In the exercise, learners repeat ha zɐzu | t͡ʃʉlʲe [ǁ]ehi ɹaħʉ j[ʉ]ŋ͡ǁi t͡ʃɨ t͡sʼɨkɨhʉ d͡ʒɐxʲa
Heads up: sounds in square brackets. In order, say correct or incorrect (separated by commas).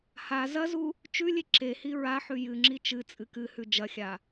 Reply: correct, incorrect